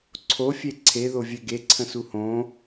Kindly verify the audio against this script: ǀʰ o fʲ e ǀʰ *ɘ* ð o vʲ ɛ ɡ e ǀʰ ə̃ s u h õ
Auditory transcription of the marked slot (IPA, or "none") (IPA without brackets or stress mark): e